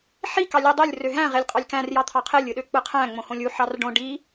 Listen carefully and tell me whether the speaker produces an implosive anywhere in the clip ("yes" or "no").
yes